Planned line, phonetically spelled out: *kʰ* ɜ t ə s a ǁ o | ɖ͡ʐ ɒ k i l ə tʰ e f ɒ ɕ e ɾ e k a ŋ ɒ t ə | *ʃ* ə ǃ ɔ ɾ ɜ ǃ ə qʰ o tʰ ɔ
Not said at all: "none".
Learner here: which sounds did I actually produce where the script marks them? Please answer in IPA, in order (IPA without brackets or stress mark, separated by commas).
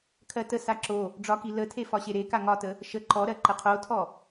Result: kʰ, ʃ